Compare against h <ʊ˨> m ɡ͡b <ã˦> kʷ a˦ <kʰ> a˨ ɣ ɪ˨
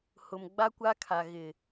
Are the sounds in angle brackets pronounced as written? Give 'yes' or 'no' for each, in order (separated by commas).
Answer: yes, no, yes